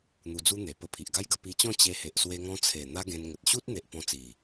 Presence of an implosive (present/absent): absent